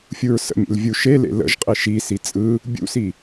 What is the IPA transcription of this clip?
fʲ u ɹ s ə̰ mʲ ḛ l vʲ u ʃ e l ḛ l ə̰ ʒ qʼ i ʃ i s i t͡sʼ ɯ | bʲ ṵ s i

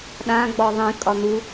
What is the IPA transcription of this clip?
ɗ ã ɡ͡b ɔ ðˤ ĩ kʼ ɒ n̪ u

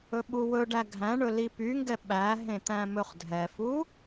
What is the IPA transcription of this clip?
ɵ ɓ u w ɵ ɖ æ ɡʱ æ̃ ɳ ɵ l i p y ŋ ɡ ɛ ɓ æ ɦ ẽ t̪ æ̃ m ɵ χ dʱ ɛ f u

